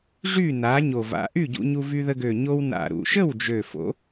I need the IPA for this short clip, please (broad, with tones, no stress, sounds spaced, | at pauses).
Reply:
ʐ y˥˨ n a˨˥ ɲ o˨˩ v a̰˨˥ ʔ y˥˨ ɟ ṵ˧ ɲ u˧ v y˧ ð ə˧ ɡ ø˨˩ ɲ o˧ w n a̰˨˩ ɾ ṵ˨˩ ʃ ə˥˨ w d͡ʒ ø˨˩ f o̰˨˥